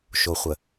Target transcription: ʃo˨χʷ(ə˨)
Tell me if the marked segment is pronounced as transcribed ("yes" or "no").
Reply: yes